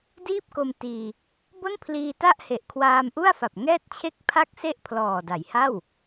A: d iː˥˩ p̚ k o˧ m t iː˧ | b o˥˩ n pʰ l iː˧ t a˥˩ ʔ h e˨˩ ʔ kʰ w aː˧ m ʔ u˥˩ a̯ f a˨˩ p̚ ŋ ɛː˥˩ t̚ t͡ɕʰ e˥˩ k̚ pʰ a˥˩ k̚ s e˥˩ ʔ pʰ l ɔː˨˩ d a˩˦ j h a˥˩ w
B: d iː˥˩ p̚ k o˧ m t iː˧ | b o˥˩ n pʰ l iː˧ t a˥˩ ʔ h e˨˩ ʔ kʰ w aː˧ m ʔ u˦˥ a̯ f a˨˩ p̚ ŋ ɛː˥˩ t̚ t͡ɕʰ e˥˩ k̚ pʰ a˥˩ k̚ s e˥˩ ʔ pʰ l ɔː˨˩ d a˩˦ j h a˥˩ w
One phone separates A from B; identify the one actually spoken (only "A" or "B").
A